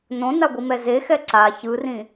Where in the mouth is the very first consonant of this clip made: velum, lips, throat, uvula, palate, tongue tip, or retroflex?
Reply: tongue tip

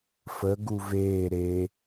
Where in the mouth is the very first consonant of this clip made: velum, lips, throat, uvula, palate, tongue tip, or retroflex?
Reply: lips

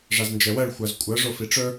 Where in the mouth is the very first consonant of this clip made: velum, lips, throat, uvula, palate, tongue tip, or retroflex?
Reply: retroflex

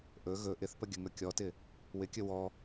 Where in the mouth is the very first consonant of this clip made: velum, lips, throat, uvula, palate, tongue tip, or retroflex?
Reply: throat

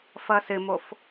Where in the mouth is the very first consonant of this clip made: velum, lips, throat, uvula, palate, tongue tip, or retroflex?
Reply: lips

